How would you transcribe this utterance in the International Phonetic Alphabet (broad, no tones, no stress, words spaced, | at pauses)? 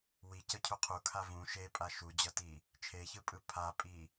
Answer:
wicʌcʰu qʰukʰa vũ ʃepʼa ʃud͡ʑʌti | t͡ʃʰeçɯpʼɯ pʰapʼi